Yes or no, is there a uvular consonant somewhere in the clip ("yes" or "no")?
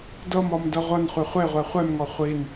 yes